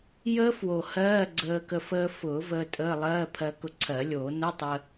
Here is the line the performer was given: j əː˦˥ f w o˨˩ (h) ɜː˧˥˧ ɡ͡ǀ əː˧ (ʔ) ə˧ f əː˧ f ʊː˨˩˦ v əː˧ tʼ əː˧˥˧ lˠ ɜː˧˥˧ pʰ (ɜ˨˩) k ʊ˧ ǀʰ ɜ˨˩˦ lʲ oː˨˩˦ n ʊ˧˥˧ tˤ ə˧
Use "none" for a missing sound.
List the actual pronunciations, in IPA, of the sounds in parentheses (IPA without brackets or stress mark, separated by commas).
h, k, ɜ˧